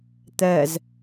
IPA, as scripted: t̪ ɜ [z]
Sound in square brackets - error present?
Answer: no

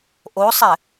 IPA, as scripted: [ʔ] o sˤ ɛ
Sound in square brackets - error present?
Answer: no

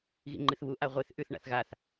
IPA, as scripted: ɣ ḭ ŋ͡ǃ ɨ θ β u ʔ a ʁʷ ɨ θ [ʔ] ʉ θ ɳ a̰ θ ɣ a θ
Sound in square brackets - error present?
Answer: no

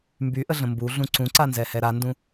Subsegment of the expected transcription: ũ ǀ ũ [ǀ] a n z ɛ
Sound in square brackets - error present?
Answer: no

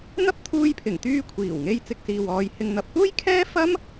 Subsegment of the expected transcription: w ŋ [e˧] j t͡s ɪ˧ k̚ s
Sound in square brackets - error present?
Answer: no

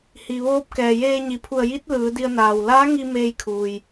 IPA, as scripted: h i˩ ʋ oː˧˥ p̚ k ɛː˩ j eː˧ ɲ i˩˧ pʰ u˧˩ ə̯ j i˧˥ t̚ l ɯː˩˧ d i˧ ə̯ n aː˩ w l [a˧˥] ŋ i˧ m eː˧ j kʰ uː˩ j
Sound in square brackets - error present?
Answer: yes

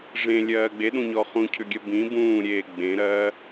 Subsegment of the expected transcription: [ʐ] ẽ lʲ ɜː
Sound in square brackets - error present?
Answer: no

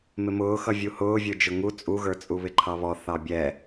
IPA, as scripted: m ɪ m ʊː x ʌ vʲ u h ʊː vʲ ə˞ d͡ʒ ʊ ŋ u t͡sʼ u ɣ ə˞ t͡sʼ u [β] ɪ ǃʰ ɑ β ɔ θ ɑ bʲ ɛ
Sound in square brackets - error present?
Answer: no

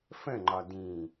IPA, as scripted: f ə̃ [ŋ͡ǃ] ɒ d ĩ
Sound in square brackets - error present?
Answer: no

